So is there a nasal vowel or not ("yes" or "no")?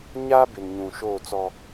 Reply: yes